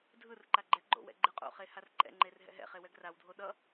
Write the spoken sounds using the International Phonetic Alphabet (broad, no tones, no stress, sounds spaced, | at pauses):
dʱ ɯ r ǃ a ɡ͡ǃ ɛ ɡ͡ǃ o̰ w ɛ̰ ɡ͡ǃ ɯ qʼ o̰ χ e h a r ǃʼ ɛ̰ ŋ͡ǃ e r ɦ ɛ̰ ɦ ɛ̰ χ e w ɛ ɡ r a w dʱ o ɗ ʌ